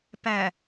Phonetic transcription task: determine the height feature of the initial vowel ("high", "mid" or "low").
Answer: low